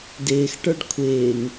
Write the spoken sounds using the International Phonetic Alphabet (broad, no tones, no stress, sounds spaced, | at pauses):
d ɪː x ʈ ə˞ ɖ kʷʰ ɪː ŋ